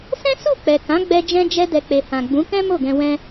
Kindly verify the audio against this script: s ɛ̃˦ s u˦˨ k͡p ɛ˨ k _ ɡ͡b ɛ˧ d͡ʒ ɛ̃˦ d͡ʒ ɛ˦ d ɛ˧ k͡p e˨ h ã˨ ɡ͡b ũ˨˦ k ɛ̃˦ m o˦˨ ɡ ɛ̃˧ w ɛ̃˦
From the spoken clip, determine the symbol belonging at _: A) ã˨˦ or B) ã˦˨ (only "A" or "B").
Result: A